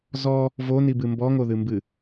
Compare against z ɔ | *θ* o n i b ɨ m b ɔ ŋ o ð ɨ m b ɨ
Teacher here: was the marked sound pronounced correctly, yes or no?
no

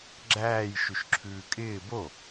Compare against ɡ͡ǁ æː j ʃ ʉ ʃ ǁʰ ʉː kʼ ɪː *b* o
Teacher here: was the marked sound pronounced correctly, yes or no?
yes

